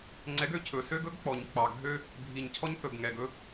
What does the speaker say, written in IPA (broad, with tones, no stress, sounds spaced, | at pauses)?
ŋ͡ǀ ɛ˨˦ ɡ ø˨ cʰ ɵ˨ s ø˦ ɡ ɵ˨˦ ɡ k͡p ɔ˨ ɲ k͡p ɑ˨ ɡʱ ø˦ | bʱ i˨ ɲ cʰ ɔ˦ ɲ θ ɵ˨ ɡ ŋ ɛ˨ ɡ ɵ˦